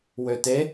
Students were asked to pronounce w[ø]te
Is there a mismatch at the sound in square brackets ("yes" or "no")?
no